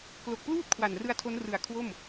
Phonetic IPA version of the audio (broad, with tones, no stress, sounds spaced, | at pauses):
k l o˨˩ k̚ p l uː˥˩ t̚ kʰ w a˨˩ n r ɯ˧ a̯ tʰ o˦˥ n r ɯ˨˩ a̯ kʰ w o˥˩ m